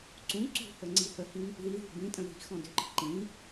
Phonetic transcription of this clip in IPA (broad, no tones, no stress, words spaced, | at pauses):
ǀũ ǀṳhə ŋ͡ǀihəhĩ | ðiðṳ bĩtʼə̃ ði̤ xɔ̃dʏǃə̤ ǃĩ